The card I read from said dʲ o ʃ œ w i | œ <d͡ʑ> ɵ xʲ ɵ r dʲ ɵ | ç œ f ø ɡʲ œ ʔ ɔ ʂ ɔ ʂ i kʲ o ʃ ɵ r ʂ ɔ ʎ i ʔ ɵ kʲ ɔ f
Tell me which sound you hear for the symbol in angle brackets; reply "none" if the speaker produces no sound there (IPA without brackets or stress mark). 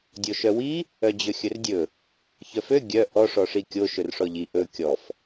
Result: d͡ʑ